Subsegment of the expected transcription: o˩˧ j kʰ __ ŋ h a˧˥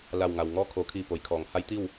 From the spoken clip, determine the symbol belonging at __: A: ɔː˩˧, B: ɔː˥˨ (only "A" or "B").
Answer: A